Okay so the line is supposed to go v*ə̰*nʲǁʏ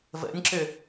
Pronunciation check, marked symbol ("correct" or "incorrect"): correct